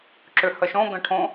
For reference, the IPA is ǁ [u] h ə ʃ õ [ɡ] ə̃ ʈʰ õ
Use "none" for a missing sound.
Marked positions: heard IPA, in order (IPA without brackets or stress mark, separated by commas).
ʏ, ɡ